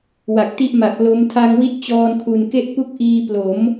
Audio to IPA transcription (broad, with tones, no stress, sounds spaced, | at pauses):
w a˨˩ k̚ t i˦˥ ʔ m a˨˩ k̚ l o˦˥ m tʰ a˧ ŋ w i˦˥ t̚ t͡ɕ ɔː˧ n kʰ u˨˩ n k e˥˩ ʔ p u˦˥ k̚ ʔ iː˧ p l o˩˦ m